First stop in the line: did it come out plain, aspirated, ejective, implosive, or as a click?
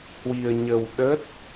implosive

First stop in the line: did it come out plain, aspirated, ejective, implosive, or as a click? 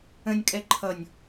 ejective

